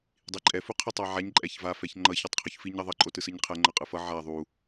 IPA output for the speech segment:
dˤ i ǃʼ ɛ f u qʰ ɛ tˤ a ʕ a ɲ ǃʼ ɛ ç v a f ɛ ç ŋ͡ǃ ʌ ç a tˤ qʰ u ç f i ɲ ʌ ðˤ ʌ ǃʼ o t ɯ s ɯ ɲ qʰ ɛ ŋ͡ǃ ʌ qʼ ɯ f ʌ ʕ a ðˤ u

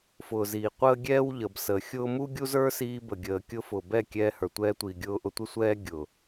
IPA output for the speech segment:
f ʊː˨ z iː˨ qʷ əː˦ ɡʲ ɛː˦ w ʎ ə˨ b s əː˨ xʲ ʊː˦ m u˦ ɡʲ u˦ z ə˞˦ s iː˧ b ə˨ ɡʲ əː˨ kʲ ʊ˧ f ʊː˨ b ɛ˦˨ kʲ ɛː˧ h ə˞˨ tʷ ɛː˧ tʷ iː˨ ɡʲ ʊː˧ ʔ ʊ˧ tʷ ɪ˦ sʷ ɛː˦ ɡʲ ʊ˨

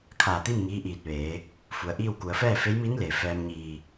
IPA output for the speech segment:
kʰ aː˧˩ t̪ i˥˨ m ŋ iː˧˥ ʔ iː˧˩ t̚ ʋ eː˩˧ | f u˩ ə̯ ʔ iː˥˨ w k u˩˧ ə̯ f ɛː˥˨ f e˧˥ j m i˧˥ n l e˩ f ɛː˧ m ɲ iː˧˩

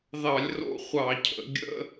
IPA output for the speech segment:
ð ɑ˧˩˧ lʲ r o̰˧˥˧ χʷ ɑ˧˩˧ cʰ ə̰˩˧ ɡʲ ə̰˧˥˧

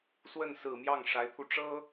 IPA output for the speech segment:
s w ə˥˩ n s ɹ̩˨˩ m j ɑ˥˩ ŋ ʂ a˧˥ ɪ̯ t̪ʰ u˧ ʈ͡ʂ ɤ˥

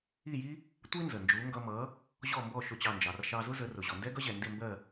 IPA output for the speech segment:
i˥˩ j i˥ | tʷ i˥ n z ə˩ n d͡ʒ u˩˥ ŋ ɡ ʌ˧ m ʌ˩˥ | ʑ ɔ˥˩ m b ɔ˥˩ ʃ ʊ˥˩ t͡ɕ ɑ˥˩ n d͡ʒ ɑ˩ r ʃ ɑ˧ z ʊ˥ z ə˩˥ r ʊ˩ ʑ ɔ˩ n d ɛ˥ ɡ ʌ˥ ʑ ɛ˩ n d ɪ˥˩ m b ɜ˥˩

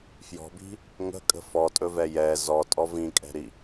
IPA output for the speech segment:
f j ɔ̤ b i̤ | ŋ ə̤ kʼ ə̤ f ɔ tʼ ɵ v ɛ j ɛ z ɔ tʼ ɔ v ĩ kʼ ɛ̤ ɾ i

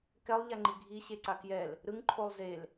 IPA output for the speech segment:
k ɛ lˠ ʎ a ŋ͡ǃ i ɡʱ i ɕ e ǀ a k j ɛ l | ɾ ɯ ŋ ǃʰ o lˠ z e l

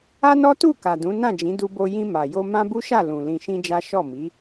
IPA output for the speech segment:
a˦ n ɔ˦ t u˦˨ k a˨ d ũ˨˦ n ã˦˨ d͡ʒ ĩ˨˦ d u˧ b o˧ j ĩ˧ m a˨ j o˧ m ã˦ b u˦ ʃ a˦˨ l ũ˨ l ĩ˧ ʃ ĩ˦ d͡ʒ a˦ ʃ ɔ˦˨ m i˨˦

